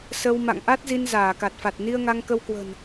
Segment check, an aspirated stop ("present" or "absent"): absent